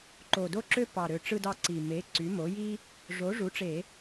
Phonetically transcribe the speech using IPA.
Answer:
ǃo˨˩do˥ǁø˥ pɑ˨˩ɾø˨˩ʈ͡ʂɯ˧dɑ˧ ǀi˨˩ me˩˥ ǀy˩˥mo˩˥ ji˥ | ʐo˩˥ʐu˩˥ʈ͡ʂe˧˩˧

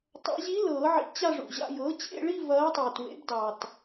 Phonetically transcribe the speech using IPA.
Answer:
tˤa̰˨˩˦ʑi˧˥ lɤː˨˩˦ʕḭ˨˩˦ t͡ɕa˥˧ʐṵ˨˩ʑa̰˥˧ jɤː˩˥t͡ɕḛ˥˧ɭi˥˧ vɐː˧˥tˤiː˨˩t wḛ˧˥bdɑː˨˩t

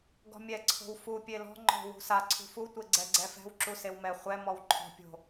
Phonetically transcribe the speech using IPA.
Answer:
ɡɔ̤mʲɛ ǀʰo̤wfu pʲelɔ̤ ŋ͡ǃɔ̤ wṳsa ǀʰṳfu tʷeɡ͡ǀɛɡ͡ǀɛfɛ̤w ǁusewmɛ χʷɛ mɔwǃʰɔ̤ pʲo̤

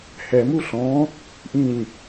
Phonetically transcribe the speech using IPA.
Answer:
hɛmu ɬɔ̃ | ʔĩɲ

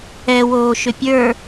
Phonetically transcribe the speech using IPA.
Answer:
ɛwoːʃʏ pʲə˞

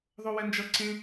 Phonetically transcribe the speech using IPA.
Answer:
ðˤowɛnd͡ʒʌ ǀẽ

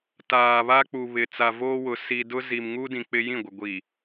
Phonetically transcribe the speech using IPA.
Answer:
taː˨βa˦k͡pu˨βɪ˨ t͡sa˨voː˦wʊ˨ si˨dʊ˦ ziː˨mŋu˦dĩ˨ k͡pɪ˦jĩ˦˨ɡʷɪ˨ ɡʷiː˨

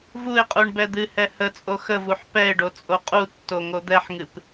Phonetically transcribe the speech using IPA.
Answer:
vuɪ̯qʼuɳ bɛd̪ɨhɛ hət͡sʼo xəvuħ pɛɪ̯ɖo t͡sʼoqʼutːo ŋod̪ɛħŋɨp

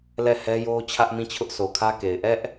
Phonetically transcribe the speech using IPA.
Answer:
lɛ˦˨hɛ˦jo˦ t͡ɕʰä˦ʔmĩ˦˨t͡ɕʰʊ˦ʔ sʰo˨kʰä˦ke˨ɪ̯ ʔɛ˦ʔ

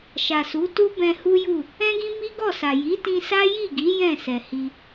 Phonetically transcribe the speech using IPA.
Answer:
ʃa˨su˨˦tu˦ bɛ̃˧hu˦ju˦˨ | ɛ̃˦ɡĩ˦ mi˦ɡɔ˦˨sa˨ ji˨˦tĩ˧sa˦ ji˦˨ɡi˨˦ jɛ̃˦˨sɛ˨hi˧

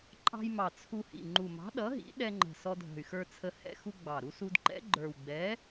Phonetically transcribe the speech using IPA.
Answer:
ǃʼɑ̤˧jmɑ˨˩ t͡sʰu˧hḭ˨˩ ŋ͡ǃu˨˩mɑ̤˨˥ɗʌ˨˥ɦḭ˨˥ ɗɛ˧ŋ͡ǃə̤˨˩ sɔ˧dʱə̤˨˩y̯xə˞˧t͡sʰə˧ hɛ̰˧xu˧ ɡ͡bɑ˨˩ ɾu˧su˧dǃɛ̰˨˥ɡ͡ǃə˞˨˩w ɡ͡bɛ˨˥

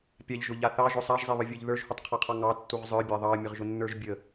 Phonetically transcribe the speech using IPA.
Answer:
pʲaʎʒʊʎa θɑʒʊ sˤaʒzˤeβəvʲə˞ʎ ðə˞ʒhutˤqʰɑqʰɑ ŋɑtːuʁ zˤə˞bʲa ðˤɑə̯mʲəʁʒʊnːə˞ʒ bʲə

